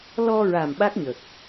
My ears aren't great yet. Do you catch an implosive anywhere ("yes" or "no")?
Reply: yes